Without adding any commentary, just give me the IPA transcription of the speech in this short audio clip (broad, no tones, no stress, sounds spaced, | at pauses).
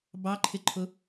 b ɑ ǃʰ ɪ ǃʰ ʊ